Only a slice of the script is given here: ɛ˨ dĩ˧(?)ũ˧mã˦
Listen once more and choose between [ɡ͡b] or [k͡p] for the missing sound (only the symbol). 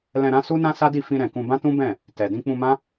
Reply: k͡p